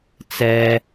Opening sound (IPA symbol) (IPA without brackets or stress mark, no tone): t͡s